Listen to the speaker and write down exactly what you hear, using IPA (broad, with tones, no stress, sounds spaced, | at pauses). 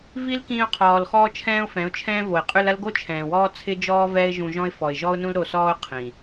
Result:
v i˦ l k ĩː˧ ʊ̯ qʰ ɔː˨ l x ɔː˦ t͡ʃʰ ɛ̃ː˦ ʊ̯ f ɛ̃˨˦ ʊ̯ t͡ʃʰ ɛ̃ː˦ v o˨ ɪ̯ qʼ ʉ˧ l ɐ˦ l ɡ o˦ t͡ʃʰ ɛ̃ː˨ w ɔː˦ t͡sʰ ɪ˦ d͡ʒ ɔː˦ v ɛː˦ ɪ̯ ʒ ũ˧ ʒ ɔ̃˦ ɪ̯ f ɔ˨ ɪ̯ ʒ ɔ˦ ʊ̯ n ũ˦ l ɾ o˧ s ɔː˦ ʊ̯ qʰ ĩ˨